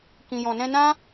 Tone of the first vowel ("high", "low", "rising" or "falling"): low